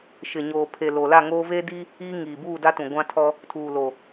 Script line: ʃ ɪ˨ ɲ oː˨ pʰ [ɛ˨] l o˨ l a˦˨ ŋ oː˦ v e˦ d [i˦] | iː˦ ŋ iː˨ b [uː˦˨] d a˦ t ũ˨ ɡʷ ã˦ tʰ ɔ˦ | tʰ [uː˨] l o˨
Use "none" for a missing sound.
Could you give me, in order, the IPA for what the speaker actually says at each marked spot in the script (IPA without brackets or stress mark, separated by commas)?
e˨, i˦, uː˦˨, uː˨